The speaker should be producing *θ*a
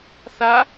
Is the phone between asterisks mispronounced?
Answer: no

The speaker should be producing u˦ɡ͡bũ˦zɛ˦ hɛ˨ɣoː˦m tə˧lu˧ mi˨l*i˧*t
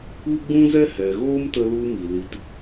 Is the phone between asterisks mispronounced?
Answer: no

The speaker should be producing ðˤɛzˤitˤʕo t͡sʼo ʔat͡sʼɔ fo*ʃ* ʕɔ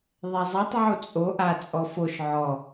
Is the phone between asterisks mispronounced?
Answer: no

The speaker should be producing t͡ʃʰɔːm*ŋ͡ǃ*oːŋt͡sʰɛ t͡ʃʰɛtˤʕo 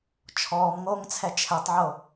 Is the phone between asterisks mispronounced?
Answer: yes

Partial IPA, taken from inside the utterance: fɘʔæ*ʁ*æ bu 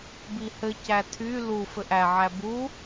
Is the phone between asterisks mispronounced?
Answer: yes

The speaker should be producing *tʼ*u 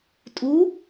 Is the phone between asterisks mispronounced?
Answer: no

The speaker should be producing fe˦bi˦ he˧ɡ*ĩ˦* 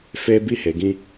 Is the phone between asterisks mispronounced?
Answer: no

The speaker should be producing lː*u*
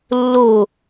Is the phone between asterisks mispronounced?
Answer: yes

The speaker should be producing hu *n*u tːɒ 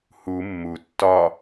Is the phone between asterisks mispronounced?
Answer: yes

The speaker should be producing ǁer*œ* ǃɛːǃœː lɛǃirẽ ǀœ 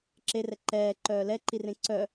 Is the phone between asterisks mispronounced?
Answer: yes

